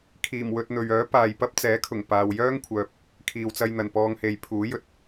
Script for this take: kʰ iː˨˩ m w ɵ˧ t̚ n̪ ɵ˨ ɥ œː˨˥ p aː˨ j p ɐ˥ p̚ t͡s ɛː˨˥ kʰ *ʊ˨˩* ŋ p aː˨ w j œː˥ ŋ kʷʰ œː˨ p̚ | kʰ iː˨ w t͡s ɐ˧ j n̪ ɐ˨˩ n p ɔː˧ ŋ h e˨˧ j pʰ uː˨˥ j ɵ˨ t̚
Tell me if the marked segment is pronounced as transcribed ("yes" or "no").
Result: yes